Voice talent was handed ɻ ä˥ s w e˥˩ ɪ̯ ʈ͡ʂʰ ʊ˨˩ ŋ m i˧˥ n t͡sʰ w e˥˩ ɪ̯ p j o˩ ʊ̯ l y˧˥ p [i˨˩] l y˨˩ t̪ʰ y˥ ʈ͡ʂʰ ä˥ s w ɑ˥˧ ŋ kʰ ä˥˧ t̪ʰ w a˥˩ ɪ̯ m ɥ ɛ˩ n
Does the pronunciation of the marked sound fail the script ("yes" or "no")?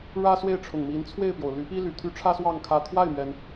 yes